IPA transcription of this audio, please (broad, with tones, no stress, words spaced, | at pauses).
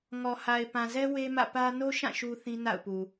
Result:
ŋɔ˨ ha˨ɪ̯pã˨zɛ˦ we˦mä̰˦˨pä˦ no˦ʃã˦˨ ʃu˦θĩ˦na̰˦˨ʊ̯pu˨